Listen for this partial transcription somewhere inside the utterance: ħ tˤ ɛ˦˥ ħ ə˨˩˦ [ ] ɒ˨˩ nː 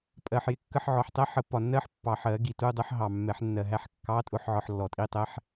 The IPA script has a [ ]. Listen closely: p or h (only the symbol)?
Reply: p